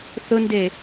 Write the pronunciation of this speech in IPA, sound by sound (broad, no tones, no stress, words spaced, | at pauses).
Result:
θʊnde